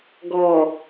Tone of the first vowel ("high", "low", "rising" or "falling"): low